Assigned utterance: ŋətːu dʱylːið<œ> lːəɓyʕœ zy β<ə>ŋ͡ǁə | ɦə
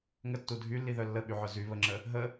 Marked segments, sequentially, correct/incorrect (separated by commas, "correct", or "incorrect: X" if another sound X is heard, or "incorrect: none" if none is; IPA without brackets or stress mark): correct, correct